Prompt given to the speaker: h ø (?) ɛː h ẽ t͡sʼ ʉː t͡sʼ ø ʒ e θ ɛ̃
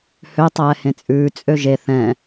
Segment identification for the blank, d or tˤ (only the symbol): tˤ